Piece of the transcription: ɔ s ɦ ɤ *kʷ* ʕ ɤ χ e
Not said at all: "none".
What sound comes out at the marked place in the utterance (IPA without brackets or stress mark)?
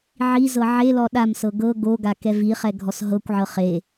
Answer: kʷ